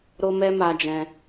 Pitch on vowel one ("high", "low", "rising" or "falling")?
high